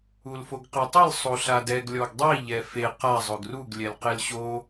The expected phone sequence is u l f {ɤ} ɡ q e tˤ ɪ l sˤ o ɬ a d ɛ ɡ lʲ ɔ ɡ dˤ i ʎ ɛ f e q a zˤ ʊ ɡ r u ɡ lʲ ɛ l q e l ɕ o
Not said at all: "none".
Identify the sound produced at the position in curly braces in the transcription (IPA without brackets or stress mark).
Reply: o